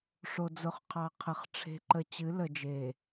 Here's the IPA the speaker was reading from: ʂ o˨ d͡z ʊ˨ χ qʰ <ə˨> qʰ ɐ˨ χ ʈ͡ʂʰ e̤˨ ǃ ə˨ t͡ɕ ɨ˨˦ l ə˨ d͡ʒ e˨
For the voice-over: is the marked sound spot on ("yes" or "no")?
no